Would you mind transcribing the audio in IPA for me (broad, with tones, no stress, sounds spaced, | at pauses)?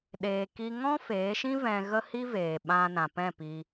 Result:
ɗ eː˨ k i˧ ŋ ɔ̃˦ f eː˨˦ ʃ ĩ˦ v ɛ̃˧ ɣ ə˦ h i˦ v eː˨ ɓ ã˧ n ã˨ p ɛ̃˦˨ p i˧